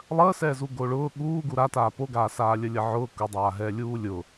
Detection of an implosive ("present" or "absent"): present